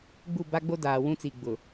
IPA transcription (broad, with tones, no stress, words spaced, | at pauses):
ɡ͡bu˦˨ ba˦ɡ͡bo˦daː˨ wũ˦t͡siː˨ɡ͡bʊ˨